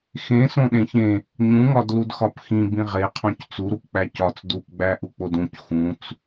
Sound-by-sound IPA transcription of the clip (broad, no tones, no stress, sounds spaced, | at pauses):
x ẽ s õ ɗ ẽ ç ẽ | ɲ ũ ŋ ɒ d l u d x ɒ p x ĩ b ĩ ʁ e qʰ õ c t͡s u ɾ u p k͡p æ c ɒ t͡s d u p ɡ͡b æ ʔ u k͡p o d ũ c x ũ t͡s